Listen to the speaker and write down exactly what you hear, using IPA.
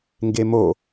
ŋɡemo

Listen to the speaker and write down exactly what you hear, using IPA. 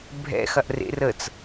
bʱɛ̰xɐʔ rḛ rət͡s

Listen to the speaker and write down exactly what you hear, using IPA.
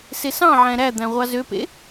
sesɑ̃ʕæ̃ ɾæd̪æ̃ ʁʷɑzøpḛ

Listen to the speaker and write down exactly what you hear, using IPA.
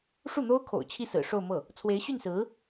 ʂu˥˩n̪o˥ʊ̯kʰo̰˨˩ʊ̯ t͡ɕʰi˥˩sɹ̩˨˩ʂo˥˧ʊ̯mɤ˥˩ | t͡sʰwe˧˥ɪ̯ɕy˥˩nsɹ̩˧˥

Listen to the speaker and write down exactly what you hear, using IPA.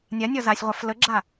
nʲanʲɒ zasʲʁʷaf ləɡ͡ǁa

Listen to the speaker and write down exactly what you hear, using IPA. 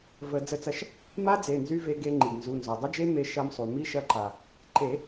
və˨˩˦ d͡zə˧t͡sɐ˧ʃ | ma˦˥d͡ze˩˧˩nzy˧ ve˧ɡe˧ ŋ͡ǃi˩ɡnzu˩˧˩ nzɔ˩dˤə˦˥d͡ʒe˦˥ me˧ ʃɐ˧msˤu˩ mi˦˥ʃɐ˧ǃa˩ | ǃe˨˩˦

